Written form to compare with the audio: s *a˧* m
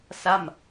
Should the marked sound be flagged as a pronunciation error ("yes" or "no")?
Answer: yes